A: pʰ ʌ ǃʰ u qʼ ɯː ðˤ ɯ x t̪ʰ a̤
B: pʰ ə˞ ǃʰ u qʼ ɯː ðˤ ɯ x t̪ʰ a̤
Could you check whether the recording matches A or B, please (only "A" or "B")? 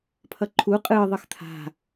A